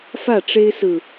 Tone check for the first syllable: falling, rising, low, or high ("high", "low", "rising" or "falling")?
falling